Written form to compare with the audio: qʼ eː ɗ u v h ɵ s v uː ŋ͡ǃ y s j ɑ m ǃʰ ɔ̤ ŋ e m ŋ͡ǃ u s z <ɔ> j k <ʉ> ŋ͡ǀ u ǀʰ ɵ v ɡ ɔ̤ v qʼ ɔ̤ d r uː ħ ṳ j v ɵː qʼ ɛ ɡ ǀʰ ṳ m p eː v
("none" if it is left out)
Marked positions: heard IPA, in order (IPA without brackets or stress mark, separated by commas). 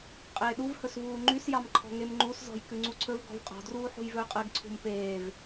ɔ̤, ʉ